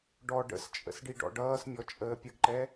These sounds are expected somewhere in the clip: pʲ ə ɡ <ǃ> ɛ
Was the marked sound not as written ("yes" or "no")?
no